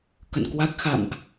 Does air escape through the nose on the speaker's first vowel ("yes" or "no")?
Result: no